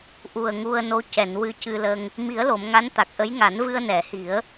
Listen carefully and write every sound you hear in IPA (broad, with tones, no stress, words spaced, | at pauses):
ʔu˨˩ə̯ŋu˧ə̯no˧˥ cɛ˨˩˨nwɨ˧cɨ˧lə˧ŋ | mi˨˩˦ə̯lo˨˩˨m ŋa˧˥n t̪a˨˩k̚ʔə˧˥jŋa˨˩˦n vɨ˧ə̯nɛ˨˩˨hi˨˩˦ə̯